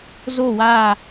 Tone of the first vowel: falling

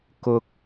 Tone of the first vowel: high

